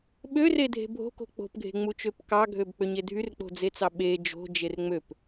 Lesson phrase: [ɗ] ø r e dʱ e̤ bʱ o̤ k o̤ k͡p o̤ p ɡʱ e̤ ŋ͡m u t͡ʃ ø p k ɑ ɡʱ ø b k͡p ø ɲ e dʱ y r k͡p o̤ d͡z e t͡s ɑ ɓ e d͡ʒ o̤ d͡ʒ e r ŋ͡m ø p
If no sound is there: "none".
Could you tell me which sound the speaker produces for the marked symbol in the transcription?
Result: ɓ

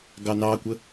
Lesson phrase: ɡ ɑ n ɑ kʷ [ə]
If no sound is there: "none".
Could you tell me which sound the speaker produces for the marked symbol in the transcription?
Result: ə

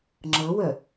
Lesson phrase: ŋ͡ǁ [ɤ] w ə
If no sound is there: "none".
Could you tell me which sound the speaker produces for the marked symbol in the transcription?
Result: ɤ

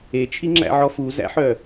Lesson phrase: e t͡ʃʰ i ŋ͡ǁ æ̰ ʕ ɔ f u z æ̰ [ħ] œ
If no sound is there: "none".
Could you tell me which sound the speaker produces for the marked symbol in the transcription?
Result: ħ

